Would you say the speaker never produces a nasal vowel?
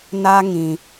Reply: no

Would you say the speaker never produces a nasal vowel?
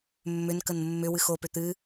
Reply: yes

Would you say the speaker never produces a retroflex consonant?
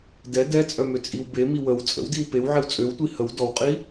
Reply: yes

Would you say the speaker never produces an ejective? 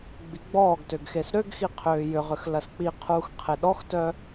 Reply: yes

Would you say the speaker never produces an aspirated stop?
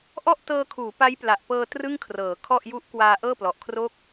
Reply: no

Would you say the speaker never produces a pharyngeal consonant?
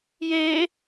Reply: yes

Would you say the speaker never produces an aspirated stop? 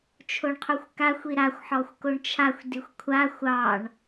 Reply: no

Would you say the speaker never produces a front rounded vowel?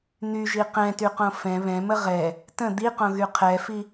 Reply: no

